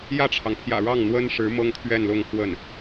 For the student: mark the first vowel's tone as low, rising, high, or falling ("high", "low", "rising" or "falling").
falling